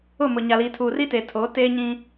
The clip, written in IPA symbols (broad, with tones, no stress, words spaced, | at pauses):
ʊ˦˨mʊ˨ ɲa˨liː˨ tʰuː˨riː˦teː˨tʰoː˨˦ teː˦ɲĩ˦